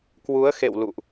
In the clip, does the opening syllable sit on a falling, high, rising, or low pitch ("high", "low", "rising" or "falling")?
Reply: rising